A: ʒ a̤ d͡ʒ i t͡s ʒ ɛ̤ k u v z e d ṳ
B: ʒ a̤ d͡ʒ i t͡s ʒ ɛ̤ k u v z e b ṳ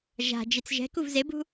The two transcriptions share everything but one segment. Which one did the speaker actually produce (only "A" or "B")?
B